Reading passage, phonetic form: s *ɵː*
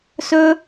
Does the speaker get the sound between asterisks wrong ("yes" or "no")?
no